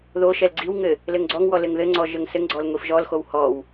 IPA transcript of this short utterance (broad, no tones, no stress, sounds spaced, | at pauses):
ð o ʃ ɛ l ɡ͡ǀ i w ŋ ɘ | l ɘ ŋ ɡ͡ǀ ɔ ŋ w ɔ l ɘ ŋ ð ɘ ŋ͡ǀ ɔ ʒ ə ŋ s ɘ ŋ ɡ͡ǀ ɔ l ŋʷ i f ʒ ɔ l x o w h ɔ w